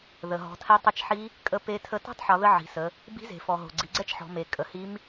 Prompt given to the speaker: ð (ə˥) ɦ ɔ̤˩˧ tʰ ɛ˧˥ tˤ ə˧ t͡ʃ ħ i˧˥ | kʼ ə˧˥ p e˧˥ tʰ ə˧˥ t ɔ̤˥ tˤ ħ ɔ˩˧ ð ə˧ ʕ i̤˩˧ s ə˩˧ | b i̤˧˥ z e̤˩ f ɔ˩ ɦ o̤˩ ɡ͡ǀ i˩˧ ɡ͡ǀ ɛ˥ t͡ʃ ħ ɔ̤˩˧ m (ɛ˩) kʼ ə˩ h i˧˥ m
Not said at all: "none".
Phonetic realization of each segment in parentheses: ə˩, e˩

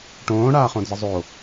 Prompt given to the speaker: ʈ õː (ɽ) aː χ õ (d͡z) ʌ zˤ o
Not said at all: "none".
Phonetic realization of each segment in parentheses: ɽ, d͡z

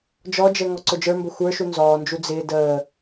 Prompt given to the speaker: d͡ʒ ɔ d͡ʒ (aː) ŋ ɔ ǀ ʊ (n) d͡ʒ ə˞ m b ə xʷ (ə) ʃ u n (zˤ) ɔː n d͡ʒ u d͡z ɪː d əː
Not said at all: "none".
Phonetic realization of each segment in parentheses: əː, none, ə˞, z

